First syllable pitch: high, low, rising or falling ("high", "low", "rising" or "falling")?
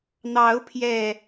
rising